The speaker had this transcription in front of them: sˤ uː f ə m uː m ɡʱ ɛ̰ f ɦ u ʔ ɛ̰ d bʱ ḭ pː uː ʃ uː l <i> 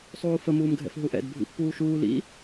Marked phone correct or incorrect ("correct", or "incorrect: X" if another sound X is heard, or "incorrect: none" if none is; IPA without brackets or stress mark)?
incorrect: ḭ